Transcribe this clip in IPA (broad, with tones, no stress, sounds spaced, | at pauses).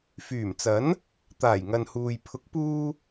f yː˨˩ m t͡s ɐ˨˥ n | t̪ aː˨˩ j ŋ ɐ˨ n h uː˨ j pʰ ʊ˨˥ k̚ p uː˧